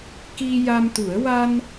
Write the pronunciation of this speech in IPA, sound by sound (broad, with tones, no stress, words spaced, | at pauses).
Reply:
ki˧ja˧mt̪u˨˩˦ə̯ wa˧n